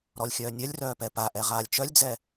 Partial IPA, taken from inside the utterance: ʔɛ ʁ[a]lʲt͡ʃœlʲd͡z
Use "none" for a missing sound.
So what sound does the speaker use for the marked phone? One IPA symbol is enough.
aː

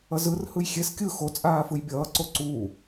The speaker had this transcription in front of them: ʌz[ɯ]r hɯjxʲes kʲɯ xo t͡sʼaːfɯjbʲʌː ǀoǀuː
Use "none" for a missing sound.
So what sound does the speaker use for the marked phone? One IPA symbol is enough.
ɯ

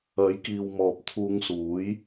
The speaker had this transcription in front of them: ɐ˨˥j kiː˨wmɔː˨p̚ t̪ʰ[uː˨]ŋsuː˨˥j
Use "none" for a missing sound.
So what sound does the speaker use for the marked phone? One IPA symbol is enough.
uː˧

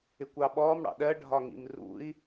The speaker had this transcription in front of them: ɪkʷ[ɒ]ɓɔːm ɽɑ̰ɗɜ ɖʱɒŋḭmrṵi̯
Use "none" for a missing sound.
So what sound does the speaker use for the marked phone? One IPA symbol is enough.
ɑ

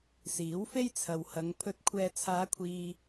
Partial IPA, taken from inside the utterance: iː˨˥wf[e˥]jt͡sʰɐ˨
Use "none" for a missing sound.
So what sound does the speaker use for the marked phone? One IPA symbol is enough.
e˥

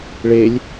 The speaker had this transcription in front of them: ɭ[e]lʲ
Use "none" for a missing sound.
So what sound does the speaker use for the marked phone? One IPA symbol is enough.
e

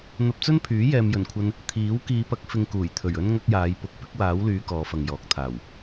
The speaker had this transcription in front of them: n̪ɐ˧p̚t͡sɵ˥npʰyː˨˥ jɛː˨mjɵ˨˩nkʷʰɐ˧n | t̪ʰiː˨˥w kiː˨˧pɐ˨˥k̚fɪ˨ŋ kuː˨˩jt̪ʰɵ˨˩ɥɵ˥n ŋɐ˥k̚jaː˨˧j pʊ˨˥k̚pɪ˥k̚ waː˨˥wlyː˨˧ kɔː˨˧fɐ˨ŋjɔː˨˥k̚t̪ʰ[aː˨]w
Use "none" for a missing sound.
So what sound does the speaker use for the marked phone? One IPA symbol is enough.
aː˨˩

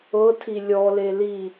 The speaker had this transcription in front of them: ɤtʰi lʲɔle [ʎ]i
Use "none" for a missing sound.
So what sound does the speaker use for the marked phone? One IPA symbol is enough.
l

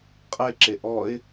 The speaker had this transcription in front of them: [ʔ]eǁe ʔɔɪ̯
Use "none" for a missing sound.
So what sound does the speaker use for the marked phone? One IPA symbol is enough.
qʼ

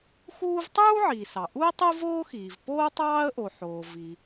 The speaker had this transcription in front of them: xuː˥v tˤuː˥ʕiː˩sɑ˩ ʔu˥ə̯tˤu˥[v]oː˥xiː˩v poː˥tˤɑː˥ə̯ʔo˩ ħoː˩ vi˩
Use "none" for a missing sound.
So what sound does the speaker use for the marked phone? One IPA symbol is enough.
v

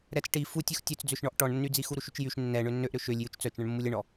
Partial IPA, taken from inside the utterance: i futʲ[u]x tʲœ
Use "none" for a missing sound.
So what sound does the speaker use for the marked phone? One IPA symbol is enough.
u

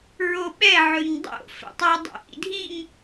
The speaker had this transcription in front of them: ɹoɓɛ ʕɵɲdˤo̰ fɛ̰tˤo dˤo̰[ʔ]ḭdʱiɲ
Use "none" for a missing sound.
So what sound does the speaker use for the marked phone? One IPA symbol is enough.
ʔ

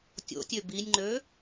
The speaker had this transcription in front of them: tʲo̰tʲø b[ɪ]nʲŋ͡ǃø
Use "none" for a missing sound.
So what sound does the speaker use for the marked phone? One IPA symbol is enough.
i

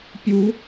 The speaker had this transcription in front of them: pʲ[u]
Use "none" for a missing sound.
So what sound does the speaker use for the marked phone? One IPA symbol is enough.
u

